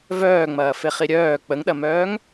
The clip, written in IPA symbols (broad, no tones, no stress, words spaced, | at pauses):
vœːŋ͡mɐːfeχi ɾʲœː k͡pəŋɗɐmœːŋ